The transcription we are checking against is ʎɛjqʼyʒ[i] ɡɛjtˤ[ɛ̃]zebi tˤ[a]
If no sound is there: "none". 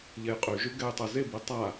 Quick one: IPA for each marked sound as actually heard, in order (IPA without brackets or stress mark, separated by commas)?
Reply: y, ɛ, a